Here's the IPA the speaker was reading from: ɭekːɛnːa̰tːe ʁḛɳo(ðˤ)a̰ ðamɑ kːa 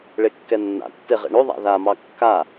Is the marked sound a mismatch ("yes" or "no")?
no